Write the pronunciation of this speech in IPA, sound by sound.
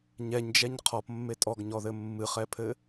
ɲɛɲd͡ʒɛɲ qʰɔpmːe tʼɔɡɲɔðɘ mːɨχɛpʰɘ

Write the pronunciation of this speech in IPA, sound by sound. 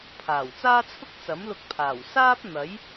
pʰaː˨˩wt͡saː˥t͡sʰʊ˥k̚ t͡sɐ˨˥mlʊ˧k̚pʰaː˨˩w saː˥p̚ n̪ɐ˨˥j

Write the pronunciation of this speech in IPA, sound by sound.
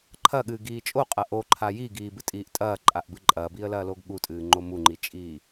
ǃʰɐɠɨːɡiː t͡ʃʼoqʼɐ ʔoǃʰa jiɡiːbɨtʼiːʔ tʼɐːǃʼaʔbɨ ǃʼɐːbiːə̯lɐːloɡ ɠutʼɨːŋ͡ǃo muŋ͡ǃit͡ʃʼiː

